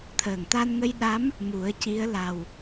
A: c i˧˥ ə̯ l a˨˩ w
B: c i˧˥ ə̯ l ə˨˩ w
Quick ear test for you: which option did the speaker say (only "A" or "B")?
A